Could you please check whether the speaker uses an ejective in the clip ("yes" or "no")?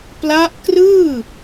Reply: no